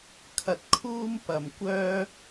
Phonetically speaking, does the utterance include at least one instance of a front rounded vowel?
yes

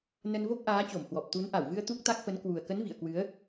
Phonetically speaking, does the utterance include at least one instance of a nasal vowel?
no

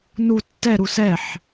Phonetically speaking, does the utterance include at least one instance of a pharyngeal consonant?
yes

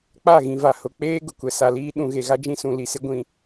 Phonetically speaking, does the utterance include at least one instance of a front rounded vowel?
no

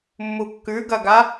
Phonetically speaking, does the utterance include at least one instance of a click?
no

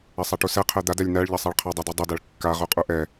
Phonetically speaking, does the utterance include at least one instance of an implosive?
no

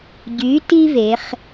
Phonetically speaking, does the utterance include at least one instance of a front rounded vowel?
yes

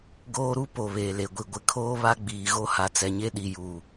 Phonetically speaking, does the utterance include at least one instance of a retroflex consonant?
no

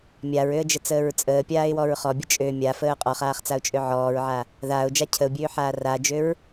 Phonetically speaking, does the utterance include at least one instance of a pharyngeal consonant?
yes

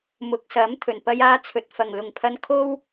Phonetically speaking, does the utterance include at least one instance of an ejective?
no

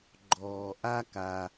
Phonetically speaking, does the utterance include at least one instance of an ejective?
no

